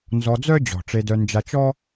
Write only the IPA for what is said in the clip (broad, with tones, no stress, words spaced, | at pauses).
nzɔ˧d͡zœ˦ d͡ʑɔ̤˨ʈ͡ʂe˧dœ˧ nd͡ʒa˧t͡ʃɔ˦